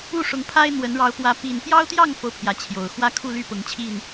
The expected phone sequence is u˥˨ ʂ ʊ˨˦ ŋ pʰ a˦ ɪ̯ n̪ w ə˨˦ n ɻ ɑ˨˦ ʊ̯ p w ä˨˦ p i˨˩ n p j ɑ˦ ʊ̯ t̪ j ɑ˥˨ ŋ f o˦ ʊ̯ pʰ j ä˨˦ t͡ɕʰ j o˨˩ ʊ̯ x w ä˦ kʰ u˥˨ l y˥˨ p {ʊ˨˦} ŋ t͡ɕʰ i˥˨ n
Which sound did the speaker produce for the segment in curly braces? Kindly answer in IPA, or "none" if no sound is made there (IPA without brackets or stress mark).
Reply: ʊ˨˦